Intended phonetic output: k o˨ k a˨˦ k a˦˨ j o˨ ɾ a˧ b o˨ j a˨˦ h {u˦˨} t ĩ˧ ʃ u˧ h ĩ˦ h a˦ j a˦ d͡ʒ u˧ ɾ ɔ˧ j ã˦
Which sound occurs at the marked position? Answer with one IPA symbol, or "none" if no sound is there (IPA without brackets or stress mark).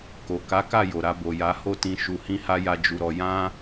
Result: o˦˨